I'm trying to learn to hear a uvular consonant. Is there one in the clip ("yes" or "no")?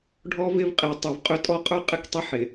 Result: yes